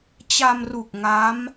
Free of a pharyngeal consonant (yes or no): yes